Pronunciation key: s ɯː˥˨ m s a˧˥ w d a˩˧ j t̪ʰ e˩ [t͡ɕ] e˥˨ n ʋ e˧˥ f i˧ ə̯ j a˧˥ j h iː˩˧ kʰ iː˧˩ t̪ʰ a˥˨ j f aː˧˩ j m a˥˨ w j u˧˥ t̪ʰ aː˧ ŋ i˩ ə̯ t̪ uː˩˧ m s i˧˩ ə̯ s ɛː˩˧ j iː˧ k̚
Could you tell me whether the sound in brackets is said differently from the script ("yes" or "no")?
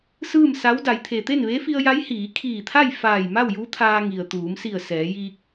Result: yes